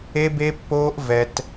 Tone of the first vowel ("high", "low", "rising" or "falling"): high